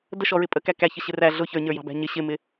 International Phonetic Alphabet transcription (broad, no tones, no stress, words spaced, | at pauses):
dəʃɔɹɪ pʼəkæ kæçəɕɪ ræ ɮʊ çə˞ɲə˞jɑ̤bæ̤ ɲɪ ɕɪmɪ